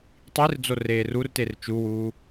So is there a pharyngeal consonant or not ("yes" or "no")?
no